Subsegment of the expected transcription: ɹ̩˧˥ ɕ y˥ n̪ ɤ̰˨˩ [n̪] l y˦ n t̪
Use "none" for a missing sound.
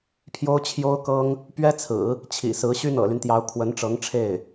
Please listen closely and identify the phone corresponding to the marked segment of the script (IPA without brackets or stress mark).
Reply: none